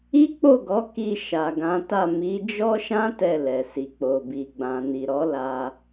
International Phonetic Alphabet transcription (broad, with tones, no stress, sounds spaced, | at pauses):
i˦ k͡p o˦˨ ɡ ɔ˨˦ k i˧ ʃ a˨ ɡ ã˨˦ t a˦˨ m i˨˦ d͡ʒ ɔ˦ ʃ ã˦ t ɛ˦˨ l ɛ˨ s i˨ k͡p o˨ b i˨ ɡ͡b ã˨ n i˨ ɾ ɔ˨˦ l a˧